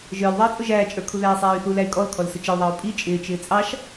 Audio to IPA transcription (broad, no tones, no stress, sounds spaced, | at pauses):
ʒ ə˞ l ðˤ ɑ i̯ t͡sʼ ʊ ʒ æː t͡ʃʼ ə˞ kʰ u ð æː sˤ æː y̯ θ u l æ y̯ kʼ ɔ l kʰ ɔ l s ʊ t͡ʃ ɪ u̯ ðˤ ʌː u̯ pʼ i t͡ʃʼ ɪː t͡ʃ ɪː t͡sʼ ɑ ʃ